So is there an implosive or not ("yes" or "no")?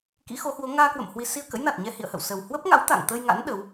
yes